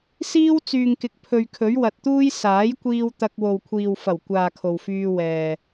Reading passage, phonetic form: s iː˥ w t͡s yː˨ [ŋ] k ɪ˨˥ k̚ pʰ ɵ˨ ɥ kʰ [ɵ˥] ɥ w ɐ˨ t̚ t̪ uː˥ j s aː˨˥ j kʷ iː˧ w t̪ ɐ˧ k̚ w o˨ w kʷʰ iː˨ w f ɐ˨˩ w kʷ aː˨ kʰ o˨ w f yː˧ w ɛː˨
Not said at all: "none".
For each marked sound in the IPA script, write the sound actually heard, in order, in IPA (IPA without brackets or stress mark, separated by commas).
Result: ŋ, ɵ˨˥